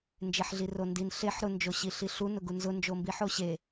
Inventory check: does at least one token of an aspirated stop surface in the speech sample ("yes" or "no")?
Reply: no